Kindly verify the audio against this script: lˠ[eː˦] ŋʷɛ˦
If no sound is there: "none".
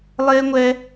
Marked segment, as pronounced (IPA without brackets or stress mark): eː˦